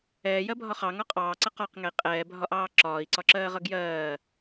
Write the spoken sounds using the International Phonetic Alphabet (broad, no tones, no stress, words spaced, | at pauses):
ɛːjɜbʱɒ χɑŋɒ qʼɑːǀʌ qɒqŋɛi̯ qʼɛːbʱɒʔɑː ǁɒːi̯ǀɒǁɜːʁʌ ɡjɜː